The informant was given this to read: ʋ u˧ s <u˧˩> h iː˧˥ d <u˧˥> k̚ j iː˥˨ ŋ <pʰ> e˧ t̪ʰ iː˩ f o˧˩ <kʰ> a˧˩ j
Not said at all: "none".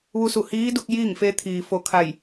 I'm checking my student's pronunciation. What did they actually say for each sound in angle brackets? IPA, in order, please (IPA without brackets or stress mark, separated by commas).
u˧˩, u˧, f, kʰ